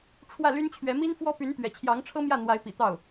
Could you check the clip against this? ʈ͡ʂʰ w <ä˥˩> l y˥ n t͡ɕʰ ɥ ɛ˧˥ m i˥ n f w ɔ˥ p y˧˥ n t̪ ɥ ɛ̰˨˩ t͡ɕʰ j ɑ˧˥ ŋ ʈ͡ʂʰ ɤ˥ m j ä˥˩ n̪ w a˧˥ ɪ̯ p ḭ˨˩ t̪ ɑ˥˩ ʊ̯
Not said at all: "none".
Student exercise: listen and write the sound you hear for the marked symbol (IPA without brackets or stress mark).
ä˥˩